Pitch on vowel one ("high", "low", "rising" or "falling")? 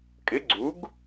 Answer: rising